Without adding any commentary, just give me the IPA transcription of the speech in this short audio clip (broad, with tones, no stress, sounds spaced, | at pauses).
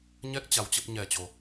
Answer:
ɲ ɛ˦˥ k̚ t͡ɕ a˨˦ w t͡ɕ ə˦˥ p̚ ɲ ɛ˨˩ t͡ɕ o˨˩